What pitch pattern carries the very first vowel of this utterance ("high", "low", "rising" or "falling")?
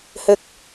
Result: high